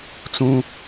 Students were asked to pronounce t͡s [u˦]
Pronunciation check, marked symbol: incorrect: ũ˦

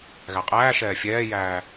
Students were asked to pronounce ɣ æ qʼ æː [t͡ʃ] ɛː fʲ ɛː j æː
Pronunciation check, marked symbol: incorrect: ʃ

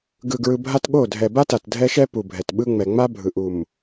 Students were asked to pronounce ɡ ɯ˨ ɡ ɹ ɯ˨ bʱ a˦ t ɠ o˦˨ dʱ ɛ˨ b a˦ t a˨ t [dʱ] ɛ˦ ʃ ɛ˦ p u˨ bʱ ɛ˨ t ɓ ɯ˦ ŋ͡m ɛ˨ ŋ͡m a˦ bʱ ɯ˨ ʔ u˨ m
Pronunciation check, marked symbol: correct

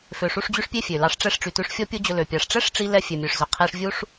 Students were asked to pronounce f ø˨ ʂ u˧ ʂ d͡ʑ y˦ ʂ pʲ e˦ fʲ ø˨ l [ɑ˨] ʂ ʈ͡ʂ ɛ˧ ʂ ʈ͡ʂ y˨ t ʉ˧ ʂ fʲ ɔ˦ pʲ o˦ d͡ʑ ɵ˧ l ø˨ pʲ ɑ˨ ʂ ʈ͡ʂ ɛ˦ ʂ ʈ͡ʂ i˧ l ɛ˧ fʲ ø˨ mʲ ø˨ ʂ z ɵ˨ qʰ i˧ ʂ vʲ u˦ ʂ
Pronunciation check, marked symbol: incorrect: ɑ˧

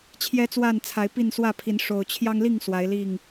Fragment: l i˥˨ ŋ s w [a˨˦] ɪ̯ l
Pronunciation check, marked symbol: correct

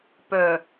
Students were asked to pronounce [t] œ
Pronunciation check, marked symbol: incorrect: p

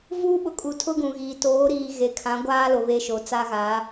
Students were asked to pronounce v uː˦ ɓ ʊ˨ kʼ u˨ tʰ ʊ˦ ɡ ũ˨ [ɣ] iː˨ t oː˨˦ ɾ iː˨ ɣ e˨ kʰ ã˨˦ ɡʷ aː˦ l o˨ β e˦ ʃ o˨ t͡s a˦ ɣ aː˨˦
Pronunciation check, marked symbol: correct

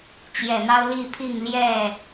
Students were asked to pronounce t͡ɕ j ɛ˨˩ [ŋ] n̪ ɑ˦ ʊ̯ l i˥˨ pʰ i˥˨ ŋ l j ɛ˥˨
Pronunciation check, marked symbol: incorrect: none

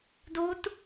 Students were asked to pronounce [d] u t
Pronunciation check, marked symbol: correct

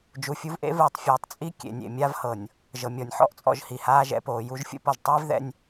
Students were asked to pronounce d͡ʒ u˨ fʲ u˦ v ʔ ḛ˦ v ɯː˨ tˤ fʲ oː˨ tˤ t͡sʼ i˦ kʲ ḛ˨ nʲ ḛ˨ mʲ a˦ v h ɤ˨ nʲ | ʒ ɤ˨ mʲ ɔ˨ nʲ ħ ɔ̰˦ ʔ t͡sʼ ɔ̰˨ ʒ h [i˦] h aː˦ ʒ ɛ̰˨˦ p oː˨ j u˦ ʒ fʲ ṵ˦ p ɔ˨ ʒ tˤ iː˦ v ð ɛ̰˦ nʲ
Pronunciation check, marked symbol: incorrect: i˨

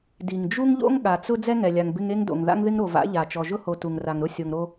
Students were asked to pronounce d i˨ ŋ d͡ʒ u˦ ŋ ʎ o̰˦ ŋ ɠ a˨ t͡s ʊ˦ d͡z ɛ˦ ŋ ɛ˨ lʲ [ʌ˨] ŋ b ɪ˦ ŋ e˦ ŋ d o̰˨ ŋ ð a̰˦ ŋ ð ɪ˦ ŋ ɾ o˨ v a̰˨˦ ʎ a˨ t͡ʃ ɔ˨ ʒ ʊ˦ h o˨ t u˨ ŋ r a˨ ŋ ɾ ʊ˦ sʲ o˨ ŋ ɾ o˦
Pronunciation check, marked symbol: incorrect: a˨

